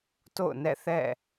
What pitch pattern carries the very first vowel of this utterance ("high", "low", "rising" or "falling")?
falling